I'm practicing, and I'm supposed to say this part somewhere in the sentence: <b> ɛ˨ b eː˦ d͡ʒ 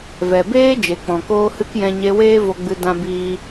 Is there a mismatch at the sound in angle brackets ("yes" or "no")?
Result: yes